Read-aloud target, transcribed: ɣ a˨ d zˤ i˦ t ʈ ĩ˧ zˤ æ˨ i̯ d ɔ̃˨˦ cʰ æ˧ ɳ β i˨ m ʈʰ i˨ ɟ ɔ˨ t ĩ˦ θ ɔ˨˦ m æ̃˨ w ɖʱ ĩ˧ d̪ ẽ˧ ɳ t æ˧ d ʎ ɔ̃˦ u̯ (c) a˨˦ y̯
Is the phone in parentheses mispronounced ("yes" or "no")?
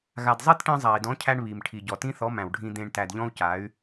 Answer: no